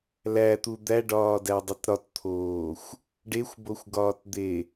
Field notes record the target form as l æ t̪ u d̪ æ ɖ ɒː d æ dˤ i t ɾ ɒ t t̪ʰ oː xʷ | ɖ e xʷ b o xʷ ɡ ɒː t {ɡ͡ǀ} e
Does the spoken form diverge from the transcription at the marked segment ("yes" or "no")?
yes